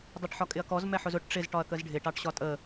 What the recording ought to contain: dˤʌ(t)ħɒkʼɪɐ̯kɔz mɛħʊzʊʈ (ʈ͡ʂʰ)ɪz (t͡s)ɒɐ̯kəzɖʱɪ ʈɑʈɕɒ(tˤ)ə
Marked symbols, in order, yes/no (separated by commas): no, no, no, no